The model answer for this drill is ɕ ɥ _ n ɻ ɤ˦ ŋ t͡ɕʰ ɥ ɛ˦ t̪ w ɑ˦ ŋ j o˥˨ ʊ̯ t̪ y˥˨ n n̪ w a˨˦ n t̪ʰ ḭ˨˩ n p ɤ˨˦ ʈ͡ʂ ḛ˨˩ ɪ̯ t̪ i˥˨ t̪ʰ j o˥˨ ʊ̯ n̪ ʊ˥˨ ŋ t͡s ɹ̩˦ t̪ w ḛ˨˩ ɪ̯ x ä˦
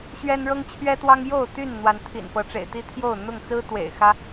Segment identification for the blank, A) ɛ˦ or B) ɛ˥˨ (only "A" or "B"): A